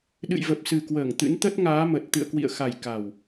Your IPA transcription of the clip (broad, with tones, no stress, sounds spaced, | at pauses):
ɗ ɨ̰˧˨ j v ə˨˩ p̚ s ɨ˨˩ k w əː˧˩ ŋ t̪ ɨ̰˧˥ n t̪ ə˦˥ t̚ ŋ aː˨˦ m ə˨˩ t̚ t̪ ɨ̰˧˨ ə̯ k w ḭ˧˨ ə̯ x a˨˩ j k a˨˩ w